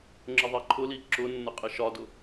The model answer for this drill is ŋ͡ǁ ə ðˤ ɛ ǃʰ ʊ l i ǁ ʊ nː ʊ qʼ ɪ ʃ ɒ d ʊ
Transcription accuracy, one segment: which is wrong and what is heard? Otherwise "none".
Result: none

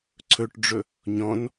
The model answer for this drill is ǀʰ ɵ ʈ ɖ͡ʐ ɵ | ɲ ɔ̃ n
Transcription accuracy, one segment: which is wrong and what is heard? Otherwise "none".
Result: none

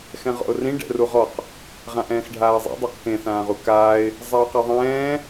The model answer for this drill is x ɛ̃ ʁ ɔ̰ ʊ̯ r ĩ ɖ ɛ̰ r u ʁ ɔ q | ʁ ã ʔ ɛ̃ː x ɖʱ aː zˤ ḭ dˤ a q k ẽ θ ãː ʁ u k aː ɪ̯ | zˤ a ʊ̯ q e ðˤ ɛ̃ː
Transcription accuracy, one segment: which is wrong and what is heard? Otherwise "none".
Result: none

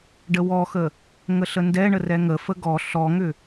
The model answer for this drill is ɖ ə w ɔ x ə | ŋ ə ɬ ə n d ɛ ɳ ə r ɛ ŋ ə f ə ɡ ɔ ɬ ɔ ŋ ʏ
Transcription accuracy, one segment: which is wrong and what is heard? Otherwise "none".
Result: none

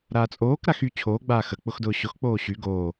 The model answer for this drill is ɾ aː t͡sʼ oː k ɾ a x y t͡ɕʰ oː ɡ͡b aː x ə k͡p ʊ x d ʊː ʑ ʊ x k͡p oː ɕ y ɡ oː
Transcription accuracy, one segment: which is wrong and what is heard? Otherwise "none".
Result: ʑ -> ɕ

